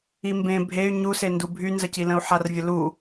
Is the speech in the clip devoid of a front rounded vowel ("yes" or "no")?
no